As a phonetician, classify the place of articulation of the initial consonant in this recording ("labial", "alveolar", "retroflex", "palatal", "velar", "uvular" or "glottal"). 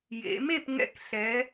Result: palatal